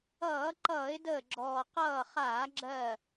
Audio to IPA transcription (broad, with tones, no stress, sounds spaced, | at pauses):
ʌː˧˩˧ ǃ ʌː˧˩˧ ɪ̯ d əː˧˩ ɡ͡ǁ ɔː˩ q ʌː˧˩ χ aː˧˩˧ ɡ͡ǁ ɜ˧˩